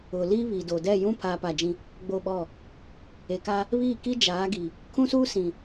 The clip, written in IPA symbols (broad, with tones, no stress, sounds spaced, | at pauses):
ʊ˨ l i˦ β i˨ d o˨ d ɛ˦˨ j ũ˦ pʰ aː˦ p a˦˨ d͡ʒ ĩ˦ | ɡ͡b o˦˨ ɓ ɔ˦˨ | e˨ k a˦ | β iː˦˨ k i˦ d͡ʒ aː˨˦ ɡ i˨ | kʰ ũ˦ s uː˦ s ĩ˨